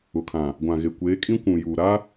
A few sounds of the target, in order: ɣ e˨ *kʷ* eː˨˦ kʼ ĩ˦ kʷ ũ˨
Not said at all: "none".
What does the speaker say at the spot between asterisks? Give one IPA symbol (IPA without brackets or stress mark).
kʷ